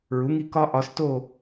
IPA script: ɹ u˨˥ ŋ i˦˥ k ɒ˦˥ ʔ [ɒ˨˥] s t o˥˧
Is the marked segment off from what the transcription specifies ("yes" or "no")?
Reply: no